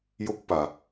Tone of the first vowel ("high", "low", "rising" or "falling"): high